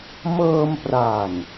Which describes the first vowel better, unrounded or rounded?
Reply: unrounded